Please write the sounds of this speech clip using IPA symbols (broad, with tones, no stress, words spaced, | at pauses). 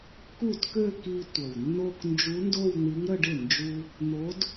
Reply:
ku˥˩tkø˥˧ki˧ tʷə˨˩wnːo˥˧k nd͡ʒu˧˥ndo˥˧wn̪i˧˥ŋ ɾə˥˧ɖɪ˥˩ nd͡ʒu˧ | n̪o˧˥d